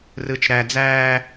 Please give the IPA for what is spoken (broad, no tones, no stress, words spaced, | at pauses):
rɯt͡ʃɾæ d͡zæː